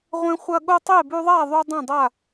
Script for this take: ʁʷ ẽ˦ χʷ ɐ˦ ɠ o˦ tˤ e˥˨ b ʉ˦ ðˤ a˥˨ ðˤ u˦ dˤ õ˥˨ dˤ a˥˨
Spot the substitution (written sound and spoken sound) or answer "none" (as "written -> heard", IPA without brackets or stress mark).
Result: none